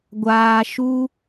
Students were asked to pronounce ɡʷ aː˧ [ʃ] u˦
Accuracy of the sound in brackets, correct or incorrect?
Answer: correct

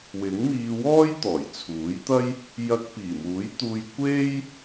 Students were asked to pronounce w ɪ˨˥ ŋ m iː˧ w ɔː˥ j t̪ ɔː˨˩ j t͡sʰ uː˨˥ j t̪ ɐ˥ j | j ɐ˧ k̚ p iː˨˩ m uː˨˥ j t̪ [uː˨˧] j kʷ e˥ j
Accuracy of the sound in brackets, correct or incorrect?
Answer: incorrect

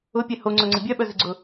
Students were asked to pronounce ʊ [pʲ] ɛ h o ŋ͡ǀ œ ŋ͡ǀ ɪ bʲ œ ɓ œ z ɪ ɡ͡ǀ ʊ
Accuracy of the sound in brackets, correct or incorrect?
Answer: correct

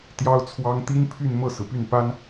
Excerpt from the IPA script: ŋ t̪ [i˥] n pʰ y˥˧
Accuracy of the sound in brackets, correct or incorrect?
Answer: correct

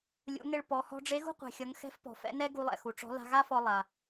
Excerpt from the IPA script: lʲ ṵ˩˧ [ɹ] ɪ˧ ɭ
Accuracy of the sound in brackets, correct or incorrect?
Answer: incorrect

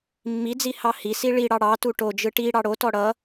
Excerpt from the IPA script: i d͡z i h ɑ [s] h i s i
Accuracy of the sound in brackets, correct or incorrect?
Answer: incorrect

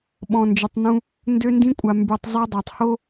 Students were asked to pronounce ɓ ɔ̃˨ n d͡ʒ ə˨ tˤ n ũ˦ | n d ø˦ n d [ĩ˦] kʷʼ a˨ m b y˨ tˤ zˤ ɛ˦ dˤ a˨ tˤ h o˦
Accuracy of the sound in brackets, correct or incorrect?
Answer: correct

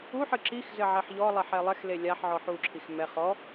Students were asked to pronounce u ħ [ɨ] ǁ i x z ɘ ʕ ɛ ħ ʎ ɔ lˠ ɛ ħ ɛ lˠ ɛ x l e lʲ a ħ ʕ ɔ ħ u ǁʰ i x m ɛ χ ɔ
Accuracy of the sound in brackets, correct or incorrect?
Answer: correct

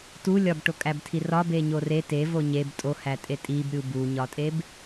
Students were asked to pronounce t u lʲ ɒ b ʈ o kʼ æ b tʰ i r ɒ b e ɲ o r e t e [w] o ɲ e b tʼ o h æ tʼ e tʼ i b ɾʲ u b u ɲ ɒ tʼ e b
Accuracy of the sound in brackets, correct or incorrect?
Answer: incorrect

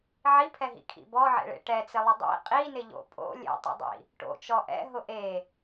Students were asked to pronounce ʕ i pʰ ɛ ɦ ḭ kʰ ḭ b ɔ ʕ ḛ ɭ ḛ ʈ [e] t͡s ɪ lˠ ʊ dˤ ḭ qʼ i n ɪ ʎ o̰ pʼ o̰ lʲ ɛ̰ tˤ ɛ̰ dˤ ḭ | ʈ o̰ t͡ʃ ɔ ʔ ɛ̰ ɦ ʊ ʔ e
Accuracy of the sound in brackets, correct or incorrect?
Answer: incorrect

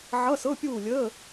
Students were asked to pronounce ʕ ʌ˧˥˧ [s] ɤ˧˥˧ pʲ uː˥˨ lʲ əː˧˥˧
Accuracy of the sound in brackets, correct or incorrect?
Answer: correct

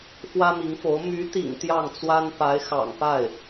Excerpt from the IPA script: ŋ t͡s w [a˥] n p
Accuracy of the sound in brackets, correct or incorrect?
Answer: correct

